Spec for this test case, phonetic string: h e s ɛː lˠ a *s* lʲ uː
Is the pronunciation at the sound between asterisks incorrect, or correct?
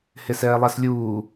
correct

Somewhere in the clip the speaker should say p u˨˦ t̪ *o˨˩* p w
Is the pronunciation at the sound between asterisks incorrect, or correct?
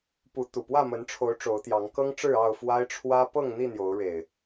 incorrect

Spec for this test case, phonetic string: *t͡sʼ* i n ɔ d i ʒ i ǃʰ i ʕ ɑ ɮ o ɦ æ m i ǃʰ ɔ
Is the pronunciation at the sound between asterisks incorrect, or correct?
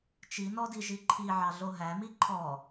incorrect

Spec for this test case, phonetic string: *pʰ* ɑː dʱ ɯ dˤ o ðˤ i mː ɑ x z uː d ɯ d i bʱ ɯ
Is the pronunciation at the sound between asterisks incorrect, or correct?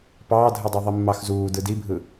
incorrect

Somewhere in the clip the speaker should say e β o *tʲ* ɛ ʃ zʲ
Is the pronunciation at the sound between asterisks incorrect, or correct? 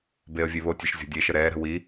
correct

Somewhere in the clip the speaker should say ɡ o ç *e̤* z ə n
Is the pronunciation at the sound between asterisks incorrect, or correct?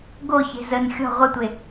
correct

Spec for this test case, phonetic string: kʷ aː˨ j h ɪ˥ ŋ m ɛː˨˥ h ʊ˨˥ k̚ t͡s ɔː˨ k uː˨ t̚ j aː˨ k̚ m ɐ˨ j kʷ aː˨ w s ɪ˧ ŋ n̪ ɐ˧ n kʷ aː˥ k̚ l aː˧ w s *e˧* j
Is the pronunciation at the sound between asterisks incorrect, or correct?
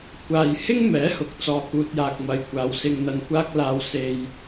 correct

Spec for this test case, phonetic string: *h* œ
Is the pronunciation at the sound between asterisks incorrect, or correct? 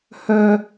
correct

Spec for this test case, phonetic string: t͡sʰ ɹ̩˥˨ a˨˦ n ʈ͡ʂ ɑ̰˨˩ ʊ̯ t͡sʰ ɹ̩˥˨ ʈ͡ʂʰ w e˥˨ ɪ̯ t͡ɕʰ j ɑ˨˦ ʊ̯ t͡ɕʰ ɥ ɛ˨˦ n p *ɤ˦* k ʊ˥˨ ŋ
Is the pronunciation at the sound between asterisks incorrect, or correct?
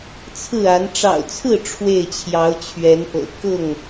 incorrect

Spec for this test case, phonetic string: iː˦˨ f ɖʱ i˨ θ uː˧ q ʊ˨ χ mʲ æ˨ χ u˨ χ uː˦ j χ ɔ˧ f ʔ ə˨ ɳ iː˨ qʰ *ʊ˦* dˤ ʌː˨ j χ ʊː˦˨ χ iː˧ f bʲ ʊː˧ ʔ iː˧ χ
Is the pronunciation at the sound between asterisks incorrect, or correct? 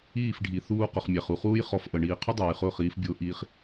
correct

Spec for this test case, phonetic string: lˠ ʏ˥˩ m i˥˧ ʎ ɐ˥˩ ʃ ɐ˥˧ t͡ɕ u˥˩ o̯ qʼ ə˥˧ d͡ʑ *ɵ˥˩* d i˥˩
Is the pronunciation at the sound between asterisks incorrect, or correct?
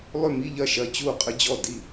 incorrect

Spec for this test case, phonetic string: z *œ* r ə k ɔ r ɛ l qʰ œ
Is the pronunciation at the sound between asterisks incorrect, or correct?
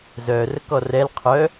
correct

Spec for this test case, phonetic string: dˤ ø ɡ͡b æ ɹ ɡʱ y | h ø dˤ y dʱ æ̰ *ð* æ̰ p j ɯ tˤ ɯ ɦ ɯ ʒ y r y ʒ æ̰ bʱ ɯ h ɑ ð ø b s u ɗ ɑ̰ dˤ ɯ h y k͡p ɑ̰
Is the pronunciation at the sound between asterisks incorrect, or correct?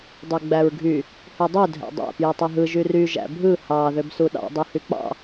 incorrect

